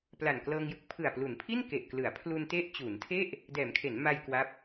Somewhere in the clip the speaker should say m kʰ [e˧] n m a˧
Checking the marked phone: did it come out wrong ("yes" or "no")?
yes